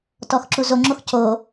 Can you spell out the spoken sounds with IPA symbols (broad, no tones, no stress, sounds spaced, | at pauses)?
t ɔ x ǁ u z o ŋ͡ǁ o x c o